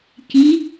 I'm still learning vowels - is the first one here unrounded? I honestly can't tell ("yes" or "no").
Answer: yes